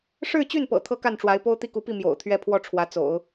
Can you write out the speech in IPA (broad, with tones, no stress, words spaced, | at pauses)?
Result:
ʂɻ̩˥˧t͡ɕy˥˩npɤ̰˨˩ t̪ʰɤ˥ka˥˩nʈ͡ʂwa˧˥ɪ̯ po˥ʊ̯t̪i˥˩ku˧˥pi˥˩ mjo̰˨˩ʊ̯t̪ʰɥɛ˥ pʰwɔ˥˩ʈ͡ʂʰwä˧˥t͡so̰˨˩˦ʊ̯